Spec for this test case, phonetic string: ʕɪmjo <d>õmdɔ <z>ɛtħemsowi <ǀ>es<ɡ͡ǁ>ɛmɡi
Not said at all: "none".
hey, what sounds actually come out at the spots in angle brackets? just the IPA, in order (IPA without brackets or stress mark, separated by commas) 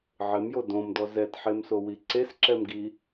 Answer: d, z, ǀ, ǁ